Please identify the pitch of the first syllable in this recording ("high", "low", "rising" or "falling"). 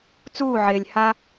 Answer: falling